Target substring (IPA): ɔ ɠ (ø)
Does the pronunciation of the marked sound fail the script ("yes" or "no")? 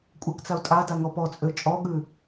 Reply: yes